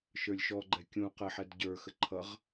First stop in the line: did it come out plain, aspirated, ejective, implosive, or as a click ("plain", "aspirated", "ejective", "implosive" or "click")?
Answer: click